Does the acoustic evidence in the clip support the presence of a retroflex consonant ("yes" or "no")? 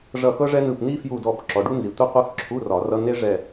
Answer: yes